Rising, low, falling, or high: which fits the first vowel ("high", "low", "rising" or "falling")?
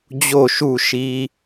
falling